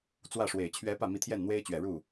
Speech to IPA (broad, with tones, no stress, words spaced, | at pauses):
t͡swä˥˩ʂwe˨˩ɪ̯ t͡ɕʰɥɛ˧˥ pä˥˩ mi˧˥t̪ʰjɛ˥˩nn̪we˥ɪ̯t͡ɕɥɛ˨˩ ɻu˥˩